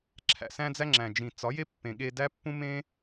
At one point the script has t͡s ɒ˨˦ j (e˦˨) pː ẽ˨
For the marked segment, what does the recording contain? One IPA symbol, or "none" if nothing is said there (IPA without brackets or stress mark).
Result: e˦